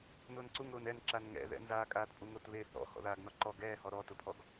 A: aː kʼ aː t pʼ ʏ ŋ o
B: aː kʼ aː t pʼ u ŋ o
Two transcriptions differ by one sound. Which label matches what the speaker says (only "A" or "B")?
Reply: B